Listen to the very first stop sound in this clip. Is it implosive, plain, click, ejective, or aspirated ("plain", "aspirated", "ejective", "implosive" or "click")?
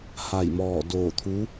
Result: plain